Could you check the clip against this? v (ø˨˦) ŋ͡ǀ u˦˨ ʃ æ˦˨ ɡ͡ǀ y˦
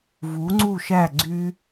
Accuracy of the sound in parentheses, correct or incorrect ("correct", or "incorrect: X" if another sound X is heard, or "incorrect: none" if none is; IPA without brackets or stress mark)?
incorrect: u˨˦